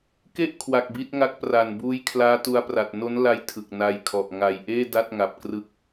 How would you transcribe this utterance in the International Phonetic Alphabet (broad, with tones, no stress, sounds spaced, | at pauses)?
k e˥˩ ʔ kʰ w a˨˩ k̚ b i˦˥ t̚ ŋ a˦˥ k̚ p r a˨˩ n b uː˦˥ j kʰ l aː˦˥ t u˧ a̯ p r a˨˩ t̚ n o˦˥ n l a˦˥ j tʰ ɯ˨˩ k̚ n a˧ j kʰ ɔ˨˩ ʔ ŋ a˨˩ j ʔ eː˥˩ d a˥˩ t̚ ŋ a˨˩ p̚ k r ɯ˦˥ k̚